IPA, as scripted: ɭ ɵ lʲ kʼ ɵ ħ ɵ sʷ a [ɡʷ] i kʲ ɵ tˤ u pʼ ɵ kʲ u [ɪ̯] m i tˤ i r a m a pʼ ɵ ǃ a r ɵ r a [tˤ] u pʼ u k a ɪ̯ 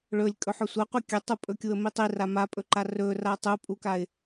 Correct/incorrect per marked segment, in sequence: incorrect: qʷ, incorrect: ə̯, correct

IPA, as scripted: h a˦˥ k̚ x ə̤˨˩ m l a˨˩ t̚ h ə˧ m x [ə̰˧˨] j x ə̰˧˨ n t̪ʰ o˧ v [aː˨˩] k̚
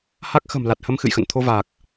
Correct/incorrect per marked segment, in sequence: incorrect: ɨ̰˧˨, correct

